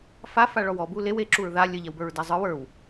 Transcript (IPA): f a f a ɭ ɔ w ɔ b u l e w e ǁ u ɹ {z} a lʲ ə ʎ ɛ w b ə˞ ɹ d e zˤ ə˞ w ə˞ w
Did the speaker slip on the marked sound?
yes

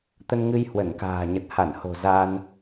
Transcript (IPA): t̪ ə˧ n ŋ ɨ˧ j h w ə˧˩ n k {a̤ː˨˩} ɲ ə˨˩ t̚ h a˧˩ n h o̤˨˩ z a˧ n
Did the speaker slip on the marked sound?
no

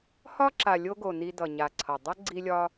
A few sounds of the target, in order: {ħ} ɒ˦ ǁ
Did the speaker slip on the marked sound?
yes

